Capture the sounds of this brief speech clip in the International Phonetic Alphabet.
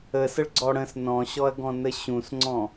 ə s ə ɭ ɡ͡ǀ ɔ ɽ ə̃ s n ɔ̃ ɕ ɔ ɐ̯ ɡ ɔ̃ n ə ɕ ũ s ŋ͡ǀ ɔ̃

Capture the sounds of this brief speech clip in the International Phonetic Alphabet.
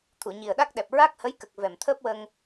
t̪ʰ u˨˩˨ ɲ i˨˩ ə̯ ɗ a˦˥ k̚ ɗ ɛ˨˩ p̚ ɹ a˦˥ k̚ h ə˧˥ j k ə˨˩ k̚ v ɛ˨˩ m t̪ʰ əː˦˥ p̚ w ə˧ ŋ

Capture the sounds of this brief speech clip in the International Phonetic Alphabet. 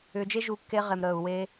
ʏː˧ d͡ʒ e˦ ʒ u˧ kː e˧ ʁ e˨ m ɾ əː˨ u̯ w e˧

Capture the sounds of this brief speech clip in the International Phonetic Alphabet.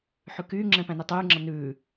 ħ ʉ k yː ŋ͡ǁ ɛ̃ p æ̃ n i tˤ ʉː ŋ͡ǁ ʌ n ʉː

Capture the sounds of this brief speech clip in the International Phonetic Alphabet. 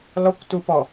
l ɔ kʷ t u p ɔ

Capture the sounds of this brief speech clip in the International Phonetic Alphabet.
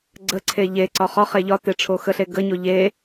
ɡ͡ǀ ə ǀʰ e ʎ e ǀ ɒ χ ɒ χ e ʎ ɒ t e ʈ͡ʂʰ o x ə ɬ e ɡ ə ɲ o ʎ e

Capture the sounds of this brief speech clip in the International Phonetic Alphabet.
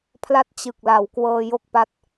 pʰ l a˥˩ t̚ t͡ɕ ɯ˨˩ k̚ l a˩˦ w k w ɤː˧ j o˥˩ k̚ p a˦˥ t̚

